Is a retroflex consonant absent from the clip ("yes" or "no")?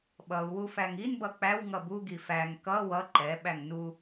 yes